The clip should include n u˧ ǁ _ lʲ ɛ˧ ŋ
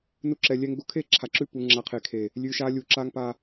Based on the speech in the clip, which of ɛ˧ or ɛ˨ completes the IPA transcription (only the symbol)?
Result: ɛ˨